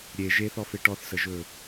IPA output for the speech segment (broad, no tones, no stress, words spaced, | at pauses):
ɾʲe ʒeθɔfe ʈɔθsəʒɵ